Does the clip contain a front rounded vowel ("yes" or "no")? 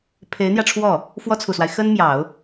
no